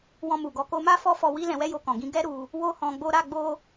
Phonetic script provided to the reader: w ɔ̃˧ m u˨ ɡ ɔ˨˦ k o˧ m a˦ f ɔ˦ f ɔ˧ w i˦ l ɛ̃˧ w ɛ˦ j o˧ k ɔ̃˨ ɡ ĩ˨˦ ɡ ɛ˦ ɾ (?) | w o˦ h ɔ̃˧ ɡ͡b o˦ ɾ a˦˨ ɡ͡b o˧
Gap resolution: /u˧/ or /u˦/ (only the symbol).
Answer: u˧